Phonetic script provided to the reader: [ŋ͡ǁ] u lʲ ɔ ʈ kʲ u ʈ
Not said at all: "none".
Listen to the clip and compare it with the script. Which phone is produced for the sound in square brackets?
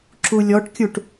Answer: ǁ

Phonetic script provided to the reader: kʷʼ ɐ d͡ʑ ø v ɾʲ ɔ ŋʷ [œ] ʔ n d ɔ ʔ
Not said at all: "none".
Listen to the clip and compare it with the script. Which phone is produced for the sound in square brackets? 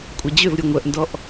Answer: œ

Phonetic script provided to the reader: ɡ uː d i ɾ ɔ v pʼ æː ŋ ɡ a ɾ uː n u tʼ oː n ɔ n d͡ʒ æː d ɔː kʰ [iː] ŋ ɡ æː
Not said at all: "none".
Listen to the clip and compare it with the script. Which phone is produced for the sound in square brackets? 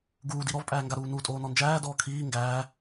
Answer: iː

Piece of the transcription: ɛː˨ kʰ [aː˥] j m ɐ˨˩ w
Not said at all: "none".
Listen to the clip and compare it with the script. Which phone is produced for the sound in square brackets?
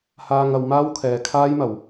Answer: aː˥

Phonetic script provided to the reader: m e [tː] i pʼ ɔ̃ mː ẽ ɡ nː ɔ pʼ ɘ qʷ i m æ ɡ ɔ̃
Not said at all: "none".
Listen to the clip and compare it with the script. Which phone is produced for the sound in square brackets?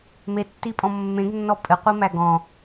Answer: tː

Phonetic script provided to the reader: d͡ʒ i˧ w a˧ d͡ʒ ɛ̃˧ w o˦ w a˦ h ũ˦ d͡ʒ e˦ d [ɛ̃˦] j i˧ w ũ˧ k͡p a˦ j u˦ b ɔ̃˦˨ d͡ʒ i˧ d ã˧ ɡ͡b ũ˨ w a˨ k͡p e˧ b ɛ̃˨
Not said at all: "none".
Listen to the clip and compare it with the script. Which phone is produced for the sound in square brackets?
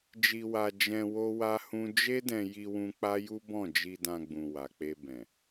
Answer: ɛ̃˧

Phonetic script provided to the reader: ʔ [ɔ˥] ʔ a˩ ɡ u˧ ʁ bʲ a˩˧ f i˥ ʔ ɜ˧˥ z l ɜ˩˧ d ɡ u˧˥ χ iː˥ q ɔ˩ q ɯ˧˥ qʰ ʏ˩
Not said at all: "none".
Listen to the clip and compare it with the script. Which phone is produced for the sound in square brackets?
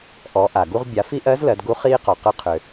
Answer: ɔ˩˧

